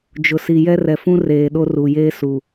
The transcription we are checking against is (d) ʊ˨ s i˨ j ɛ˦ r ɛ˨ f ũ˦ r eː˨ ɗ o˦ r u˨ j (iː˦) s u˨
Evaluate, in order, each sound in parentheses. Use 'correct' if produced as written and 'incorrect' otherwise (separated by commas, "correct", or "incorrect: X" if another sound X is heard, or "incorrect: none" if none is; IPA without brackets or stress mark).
incorrect: d͡ʒ, incorrect: eː˦